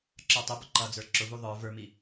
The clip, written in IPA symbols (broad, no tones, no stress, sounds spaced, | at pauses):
ǁ ə˞ tˤ ʊ b ʊ ǃ ʌ d͡z ə˞ ǁ ʊ v u ðˤ ə˞ v ə˞ m i